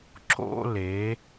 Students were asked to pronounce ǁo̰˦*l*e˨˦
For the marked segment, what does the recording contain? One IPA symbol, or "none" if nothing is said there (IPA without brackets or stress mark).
l